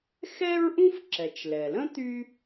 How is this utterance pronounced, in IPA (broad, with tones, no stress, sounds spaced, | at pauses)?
x ɛ˥ ɹ ʔ ũ˥ f ǁ ɛ˩ t͡ʃ l ɛ˩ l ə̃˥ t̪ y˥